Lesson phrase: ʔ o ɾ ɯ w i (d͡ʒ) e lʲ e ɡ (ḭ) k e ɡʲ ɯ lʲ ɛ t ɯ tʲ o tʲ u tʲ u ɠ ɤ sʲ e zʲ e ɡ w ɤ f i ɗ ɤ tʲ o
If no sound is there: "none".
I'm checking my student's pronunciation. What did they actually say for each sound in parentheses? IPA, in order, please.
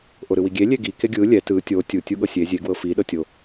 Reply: ɡʲ, i

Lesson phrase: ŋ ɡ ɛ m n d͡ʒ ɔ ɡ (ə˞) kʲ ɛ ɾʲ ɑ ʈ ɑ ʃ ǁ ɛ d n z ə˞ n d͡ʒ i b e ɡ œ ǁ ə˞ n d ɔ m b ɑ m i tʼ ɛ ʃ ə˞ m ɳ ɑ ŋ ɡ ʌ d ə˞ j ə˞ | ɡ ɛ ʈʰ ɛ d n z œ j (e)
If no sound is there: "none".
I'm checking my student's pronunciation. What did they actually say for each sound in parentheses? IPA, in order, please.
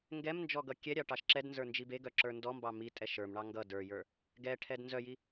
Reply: ʌ, i

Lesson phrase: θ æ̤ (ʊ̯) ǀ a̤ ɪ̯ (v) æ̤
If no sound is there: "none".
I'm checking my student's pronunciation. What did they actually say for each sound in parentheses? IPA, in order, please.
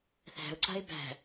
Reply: ʊ̯, b

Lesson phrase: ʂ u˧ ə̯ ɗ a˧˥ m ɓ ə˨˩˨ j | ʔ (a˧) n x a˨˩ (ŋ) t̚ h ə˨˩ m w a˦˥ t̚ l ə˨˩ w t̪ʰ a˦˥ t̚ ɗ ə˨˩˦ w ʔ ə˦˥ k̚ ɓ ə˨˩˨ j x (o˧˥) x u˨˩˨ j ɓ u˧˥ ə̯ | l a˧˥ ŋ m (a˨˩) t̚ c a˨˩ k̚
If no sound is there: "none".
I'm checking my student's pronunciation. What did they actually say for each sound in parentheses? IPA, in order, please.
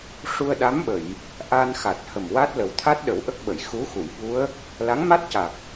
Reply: a˧, none, u˧˥, a˦˥

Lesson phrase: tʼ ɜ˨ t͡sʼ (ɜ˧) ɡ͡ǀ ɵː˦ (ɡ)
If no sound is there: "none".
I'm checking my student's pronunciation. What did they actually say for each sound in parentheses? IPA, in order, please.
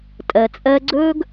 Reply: ɜ˧, ɡ

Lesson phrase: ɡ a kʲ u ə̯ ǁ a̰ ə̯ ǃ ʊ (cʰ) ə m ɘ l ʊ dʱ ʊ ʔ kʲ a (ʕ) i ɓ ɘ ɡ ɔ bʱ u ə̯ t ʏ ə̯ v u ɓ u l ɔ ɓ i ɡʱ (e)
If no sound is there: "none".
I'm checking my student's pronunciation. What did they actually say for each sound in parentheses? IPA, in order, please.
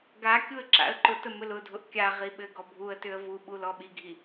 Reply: t, ʁ, i

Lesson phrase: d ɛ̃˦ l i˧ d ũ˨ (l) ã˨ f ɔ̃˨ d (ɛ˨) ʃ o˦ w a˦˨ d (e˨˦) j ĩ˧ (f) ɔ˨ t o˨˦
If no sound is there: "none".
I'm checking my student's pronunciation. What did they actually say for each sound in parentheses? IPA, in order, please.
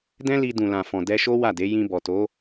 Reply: l, ɛ˧, e˨˦, b

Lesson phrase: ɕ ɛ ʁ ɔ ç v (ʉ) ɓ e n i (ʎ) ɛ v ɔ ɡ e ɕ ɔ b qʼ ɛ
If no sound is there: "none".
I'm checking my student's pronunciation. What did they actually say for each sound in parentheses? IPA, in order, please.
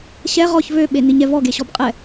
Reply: ø, ɲ

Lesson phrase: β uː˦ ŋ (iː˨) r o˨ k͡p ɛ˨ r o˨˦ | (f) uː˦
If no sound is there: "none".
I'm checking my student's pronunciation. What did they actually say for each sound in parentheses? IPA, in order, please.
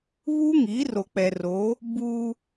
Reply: iː˨˦, b

